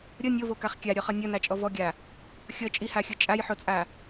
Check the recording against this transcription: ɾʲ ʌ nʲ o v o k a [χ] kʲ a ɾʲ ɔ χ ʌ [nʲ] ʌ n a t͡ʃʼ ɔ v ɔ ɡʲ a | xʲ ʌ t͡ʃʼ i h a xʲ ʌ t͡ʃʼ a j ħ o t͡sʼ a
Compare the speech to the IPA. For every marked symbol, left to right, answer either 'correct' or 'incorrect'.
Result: correct, correct

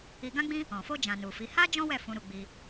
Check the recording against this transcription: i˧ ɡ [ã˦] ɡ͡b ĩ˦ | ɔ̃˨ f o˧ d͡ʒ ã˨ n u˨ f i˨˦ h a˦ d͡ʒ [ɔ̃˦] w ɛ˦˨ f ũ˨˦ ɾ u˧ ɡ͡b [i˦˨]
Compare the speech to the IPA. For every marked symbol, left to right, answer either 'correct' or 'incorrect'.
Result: correct, correct, incorrect: i˧

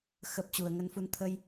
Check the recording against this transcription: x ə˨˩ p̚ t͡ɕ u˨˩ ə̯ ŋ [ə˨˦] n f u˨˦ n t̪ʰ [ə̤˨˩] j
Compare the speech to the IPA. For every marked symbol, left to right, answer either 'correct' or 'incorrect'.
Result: correct, incorrect: ə˧

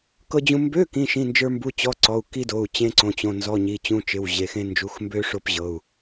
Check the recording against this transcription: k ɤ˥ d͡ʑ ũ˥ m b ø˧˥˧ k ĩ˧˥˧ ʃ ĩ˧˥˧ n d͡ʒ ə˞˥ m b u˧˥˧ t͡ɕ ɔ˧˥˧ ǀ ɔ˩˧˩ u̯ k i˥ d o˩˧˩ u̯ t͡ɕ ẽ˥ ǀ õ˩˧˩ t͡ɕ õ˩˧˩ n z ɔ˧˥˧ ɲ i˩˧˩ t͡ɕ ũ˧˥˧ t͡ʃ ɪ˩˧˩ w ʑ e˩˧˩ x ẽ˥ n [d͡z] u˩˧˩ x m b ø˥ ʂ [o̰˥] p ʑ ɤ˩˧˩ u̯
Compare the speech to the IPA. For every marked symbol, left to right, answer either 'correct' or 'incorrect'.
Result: incorrect: d͡ʒ, incorrect: o˥

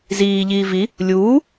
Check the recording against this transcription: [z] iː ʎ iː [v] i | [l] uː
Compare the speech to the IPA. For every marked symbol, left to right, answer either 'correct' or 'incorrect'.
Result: correct, correct, incorrect: lʲ

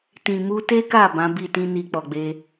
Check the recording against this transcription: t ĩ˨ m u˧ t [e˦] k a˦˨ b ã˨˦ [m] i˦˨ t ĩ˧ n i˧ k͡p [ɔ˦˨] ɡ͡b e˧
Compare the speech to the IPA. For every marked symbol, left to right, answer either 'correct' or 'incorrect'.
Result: correct, incorrect: b, incorrect: ɔ˨

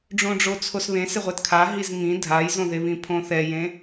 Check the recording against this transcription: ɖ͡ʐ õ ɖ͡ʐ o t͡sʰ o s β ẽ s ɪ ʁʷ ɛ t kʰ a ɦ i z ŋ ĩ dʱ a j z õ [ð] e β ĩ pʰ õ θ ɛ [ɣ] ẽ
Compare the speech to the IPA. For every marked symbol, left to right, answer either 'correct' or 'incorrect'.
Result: correct, incorrect: j

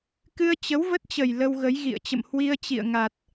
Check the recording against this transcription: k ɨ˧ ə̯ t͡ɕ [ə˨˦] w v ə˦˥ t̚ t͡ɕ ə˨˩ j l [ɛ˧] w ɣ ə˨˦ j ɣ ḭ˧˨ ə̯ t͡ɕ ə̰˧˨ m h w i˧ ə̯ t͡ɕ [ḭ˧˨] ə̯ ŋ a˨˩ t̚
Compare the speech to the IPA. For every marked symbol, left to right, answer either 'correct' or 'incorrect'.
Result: correct, incorrect: ə˧, correct

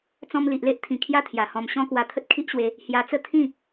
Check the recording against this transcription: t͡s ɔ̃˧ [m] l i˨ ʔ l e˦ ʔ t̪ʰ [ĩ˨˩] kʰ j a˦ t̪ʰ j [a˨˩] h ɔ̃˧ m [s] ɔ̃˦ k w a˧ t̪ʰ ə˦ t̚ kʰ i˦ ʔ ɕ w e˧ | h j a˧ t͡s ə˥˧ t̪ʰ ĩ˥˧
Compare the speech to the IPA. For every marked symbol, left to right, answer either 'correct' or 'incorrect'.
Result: correct, correct, correct, incorrect: ɕ

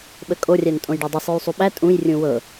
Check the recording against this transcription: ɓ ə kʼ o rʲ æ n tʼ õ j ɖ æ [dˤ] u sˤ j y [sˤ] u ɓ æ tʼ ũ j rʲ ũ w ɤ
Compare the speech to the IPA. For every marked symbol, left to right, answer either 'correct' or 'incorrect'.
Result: correct, correct

